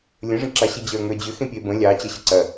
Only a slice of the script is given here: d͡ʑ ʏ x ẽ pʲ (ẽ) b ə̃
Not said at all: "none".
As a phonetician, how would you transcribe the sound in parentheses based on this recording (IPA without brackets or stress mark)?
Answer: e